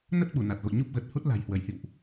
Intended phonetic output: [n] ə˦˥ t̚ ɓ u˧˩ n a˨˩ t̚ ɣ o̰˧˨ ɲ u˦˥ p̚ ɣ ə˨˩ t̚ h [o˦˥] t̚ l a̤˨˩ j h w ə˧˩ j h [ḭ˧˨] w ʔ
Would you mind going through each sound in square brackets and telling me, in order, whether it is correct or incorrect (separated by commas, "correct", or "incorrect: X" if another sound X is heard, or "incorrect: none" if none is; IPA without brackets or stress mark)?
correct, incorrect: u˦˥, correct